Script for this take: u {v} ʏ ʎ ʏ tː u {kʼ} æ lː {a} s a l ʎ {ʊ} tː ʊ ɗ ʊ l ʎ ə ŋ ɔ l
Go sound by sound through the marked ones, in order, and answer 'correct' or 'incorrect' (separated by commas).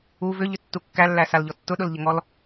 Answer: correct, incorrect, incorrect, incorrect